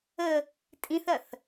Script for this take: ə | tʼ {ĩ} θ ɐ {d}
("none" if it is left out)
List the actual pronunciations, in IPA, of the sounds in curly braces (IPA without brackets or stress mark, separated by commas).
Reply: ĩ, θ